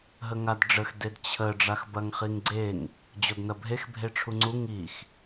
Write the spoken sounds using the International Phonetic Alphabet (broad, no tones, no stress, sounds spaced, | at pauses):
ɦ ə ŋ a d ɖ͡ʐ ə x d e d t͡ɕʰ ə ɖ͡ʐ a x b ɐ ŋ χ i ŋ ɡ͡ǀ e ŋ | d͡ʑ ɔ d n ɐ bʱ e x bʱ e ʈ͡ʂʰ u ŋ͡ǀ u ŋ i x